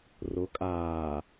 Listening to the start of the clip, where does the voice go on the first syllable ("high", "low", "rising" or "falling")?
rising